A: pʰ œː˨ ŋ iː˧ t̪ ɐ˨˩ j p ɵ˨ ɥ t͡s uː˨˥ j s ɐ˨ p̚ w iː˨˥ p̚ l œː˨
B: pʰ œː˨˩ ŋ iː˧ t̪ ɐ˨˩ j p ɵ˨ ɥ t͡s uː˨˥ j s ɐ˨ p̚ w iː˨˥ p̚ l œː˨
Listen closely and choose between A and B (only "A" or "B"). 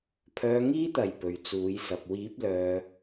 A